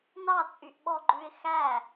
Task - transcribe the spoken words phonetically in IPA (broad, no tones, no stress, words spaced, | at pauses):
nɑt͡sʼyʔɓɔɡ͡ǃʉɪ̯ xæ